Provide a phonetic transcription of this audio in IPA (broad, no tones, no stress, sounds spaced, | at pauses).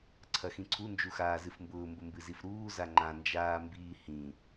ǀʰ ɐ x ĩ ǀʰ u n d͡ʒ u x aː z ɨ f m b ʊː m b ʊ m b ɨ z i f ɾ uː z a ŋ͡ǃ ã n d͡ʒ aː m b iː h ĩ